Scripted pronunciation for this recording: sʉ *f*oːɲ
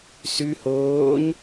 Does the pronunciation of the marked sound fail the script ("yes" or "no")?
yes